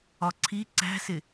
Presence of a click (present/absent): present